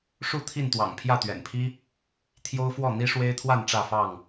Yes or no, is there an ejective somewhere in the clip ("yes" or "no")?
no